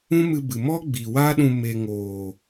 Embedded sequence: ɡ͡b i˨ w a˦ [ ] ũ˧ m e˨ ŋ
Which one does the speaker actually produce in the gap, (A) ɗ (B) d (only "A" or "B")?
A